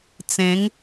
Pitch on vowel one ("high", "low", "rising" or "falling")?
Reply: rising